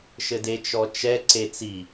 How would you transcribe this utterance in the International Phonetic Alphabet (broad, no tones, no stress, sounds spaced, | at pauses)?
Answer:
ʃ ɘ d e t͡ʃ ɔ t͡ʃ ɛ ǀ e t͡s i